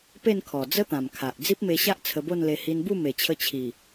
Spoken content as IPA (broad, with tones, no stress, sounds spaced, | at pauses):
p e˥˧ n kʰ ɔ˨˩ d͡z ə˦ t̪ ã˨˩ m kʰ a˨ ʔ d͡z i˦ p̚ m e˧ ɕ a˦ ʔ t͡sʰ ə˧ b o˥˧ n l e˧ h i˧ n b u˥˧ m e˨˩ t͡ɕʰ ə˧ t͡ɕʰ i˨˩